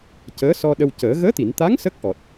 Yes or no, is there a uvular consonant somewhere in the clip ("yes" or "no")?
no